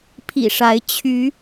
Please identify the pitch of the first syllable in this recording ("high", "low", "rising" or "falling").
low